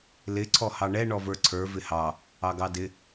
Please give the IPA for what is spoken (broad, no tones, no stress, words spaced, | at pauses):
lɪ ǀʰɔhɑɳɛ ɳɔvə˞ǀʰə˞ vɪhɑ | ɑɡɑdɪ